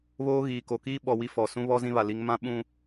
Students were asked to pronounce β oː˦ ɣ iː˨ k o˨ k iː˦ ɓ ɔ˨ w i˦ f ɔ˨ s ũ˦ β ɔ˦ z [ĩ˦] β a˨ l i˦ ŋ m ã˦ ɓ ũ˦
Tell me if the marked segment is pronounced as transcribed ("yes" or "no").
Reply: yes